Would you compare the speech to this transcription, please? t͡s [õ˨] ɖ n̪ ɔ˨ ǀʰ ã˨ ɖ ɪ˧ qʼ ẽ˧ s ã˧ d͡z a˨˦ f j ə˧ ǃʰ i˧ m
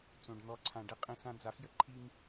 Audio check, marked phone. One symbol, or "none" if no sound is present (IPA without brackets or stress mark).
õ˨